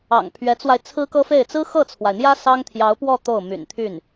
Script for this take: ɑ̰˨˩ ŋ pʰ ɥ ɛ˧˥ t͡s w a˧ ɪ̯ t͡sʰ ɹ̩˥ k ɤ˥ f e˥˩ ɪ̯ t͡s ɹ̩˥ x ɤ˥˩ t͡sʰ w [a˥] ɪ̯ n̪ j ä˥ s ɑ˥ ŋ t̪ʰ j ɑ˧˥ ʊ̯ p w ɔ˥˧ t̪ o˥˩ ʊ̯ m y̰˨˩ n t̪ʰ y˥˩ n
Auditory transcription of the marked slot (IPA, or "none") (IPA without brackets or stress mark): a˩